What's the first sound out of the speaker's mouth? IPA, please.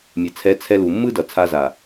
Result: mʲ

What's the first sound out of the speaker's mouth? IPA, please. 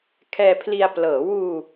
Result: kʰ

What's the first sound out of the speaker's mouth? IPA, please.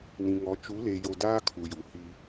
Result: n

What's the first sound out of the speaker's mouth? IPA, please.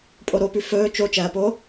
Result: pʼ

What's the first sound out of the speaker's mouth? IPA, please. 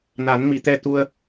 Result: n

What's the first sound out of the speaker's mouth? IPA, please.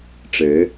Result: ʈ͡ʂ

